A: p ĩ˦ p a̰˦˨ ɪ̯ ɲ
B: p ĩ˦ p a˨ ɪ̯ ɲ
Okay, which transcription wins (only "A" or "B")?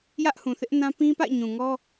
A